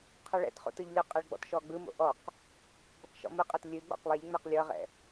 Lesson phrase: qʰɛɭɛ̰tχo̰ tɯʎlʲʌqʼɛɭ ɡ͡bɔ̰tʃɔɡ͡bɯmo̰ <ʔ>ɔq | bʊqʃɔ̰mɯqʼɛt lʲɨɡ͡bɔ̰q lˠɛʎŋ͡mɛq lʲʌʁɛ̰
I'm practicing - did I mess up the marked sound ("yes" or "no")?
no